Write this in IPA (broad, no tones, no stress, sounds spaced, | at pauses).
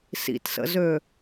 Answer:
s ḭ t s ə̰ z øː